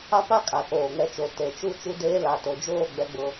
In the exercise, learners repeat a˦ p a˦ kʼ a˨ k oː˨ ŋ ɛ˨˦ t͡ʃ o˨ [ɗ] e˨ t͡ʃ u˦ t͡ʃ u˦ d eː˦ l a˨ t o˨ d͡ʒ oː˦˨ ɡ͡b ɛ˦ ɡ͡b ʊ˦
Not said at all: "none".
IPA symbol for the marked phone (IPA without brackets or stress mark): t